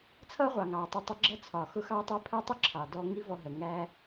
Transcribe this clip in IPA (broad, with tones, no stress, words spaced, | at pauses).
t͡sʰʌ˦ʁʷɑ˨ŋɑ˨ tˤə˧tˤʊ˧ɡ͡ǁʌ˦ t͡sʰɒ˨xʊ˧ xɑ˦tˤæ˦pʰɜ˦ tˤʊ˦ǁʰɑ˨dɔ˧ ŋi˦vɔ˧ɦɜ˨ ŋæ˦